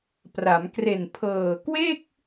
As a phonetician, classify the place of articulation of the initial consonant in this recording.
labial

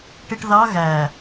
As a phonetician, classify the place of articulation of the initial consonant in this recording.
retroflex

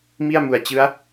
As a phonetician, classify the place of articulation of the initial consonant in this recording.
labial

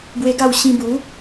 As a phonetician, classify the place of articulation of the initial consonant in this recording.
labial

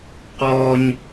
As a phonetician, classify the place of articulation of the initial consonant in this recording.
uvular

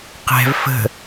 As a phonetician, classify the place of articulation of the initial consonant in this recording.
uvular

